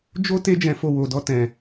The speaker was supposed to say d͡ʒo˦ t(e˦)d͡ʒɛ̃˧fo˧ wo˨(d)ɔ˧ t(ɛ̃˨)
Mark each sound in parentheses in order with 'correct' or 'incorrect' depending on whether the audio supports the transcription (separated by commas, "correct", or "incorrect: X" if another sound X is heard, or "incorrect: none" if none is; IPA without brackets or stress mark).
correct, correct, correct